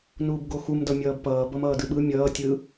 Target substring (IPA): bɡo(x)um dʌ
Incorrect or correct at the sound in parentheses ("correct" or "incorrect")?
correct